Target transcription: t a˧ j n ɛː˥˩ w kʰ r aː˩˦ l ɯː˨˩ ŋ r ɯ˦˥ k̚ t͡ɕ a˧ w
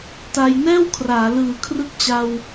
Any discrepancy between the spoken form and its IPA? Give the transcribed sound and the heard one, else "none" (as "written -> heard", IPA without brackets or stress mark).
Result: ŋ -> kʰ